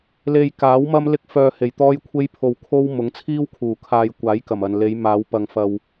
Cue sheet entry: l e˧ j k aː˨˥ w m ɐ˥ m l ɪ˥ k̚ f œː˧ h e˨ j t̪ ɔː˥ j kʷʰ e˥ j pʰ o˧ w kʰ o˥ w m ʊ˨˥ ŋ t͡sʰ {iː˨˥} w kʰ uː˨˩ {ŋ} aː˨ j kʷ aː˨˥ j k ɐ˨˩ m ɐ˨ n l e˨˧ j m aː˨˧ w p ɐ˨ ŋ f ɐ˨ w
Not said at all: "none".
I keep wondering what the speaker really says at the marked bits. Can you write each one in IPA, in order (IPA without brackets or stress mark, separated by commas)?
iː˥, kʰ